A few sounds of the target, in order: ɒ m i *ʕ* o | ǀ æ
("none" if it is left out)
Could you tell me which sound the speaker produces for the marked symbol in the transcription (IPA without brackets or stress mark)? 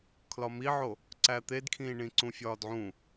ʕ